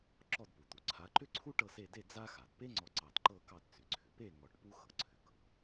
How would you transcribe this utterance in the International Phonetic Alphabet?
ǁ ɔ˥˨ d p u˩ t̪ u˩ ǀʰ a˨˦ ǃ ʏ˥ ǀʰ u˥ ʈ ɤ˥˨ s e˥˨ d e˥˨ d͡z a˥ x a˩ d p e˥ ŋ͡ǀ ɔ˧˩ ǀ ɑ˧˩ d ǃ ɤ˥˨ k ɑ˥˨ d t͡s ʏ˩ ǀʰ ʏ˩ p e˥˨ ŋ ɔ˧˩ ʈ p u˥ x ɤ˩ ǀʰ ʏ˩ k ɤ˩

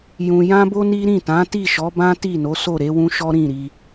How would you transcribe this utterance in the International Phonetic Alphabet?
j ũ˧ j ã˦ b o˦ n i˦ ɾ ĩ˦˨ t ã˨˦ t i˦˨ ʃ ɔ˨˦ b ã˦ t i˦˨ n o˨˦ s o˦˨ ɾ e˨˦ w ũ˦ ʃ ɔ˦ ɾ ĩ˦˨ ɾ i˧

